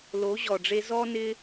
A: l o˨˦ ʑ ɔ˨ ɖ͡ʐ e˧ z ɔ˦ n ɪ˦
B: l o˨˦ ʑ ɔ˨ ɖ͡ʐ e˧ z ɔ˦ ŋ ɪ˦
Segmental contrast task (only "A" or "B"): A